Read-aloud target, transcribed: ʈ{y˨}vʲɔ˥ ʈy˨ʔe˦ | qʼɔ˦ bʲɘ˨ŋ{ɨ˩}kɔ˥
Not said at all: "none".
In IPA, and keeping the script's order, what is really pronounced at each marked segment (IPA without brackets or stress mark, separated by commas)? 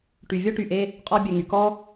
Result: y˨, y˩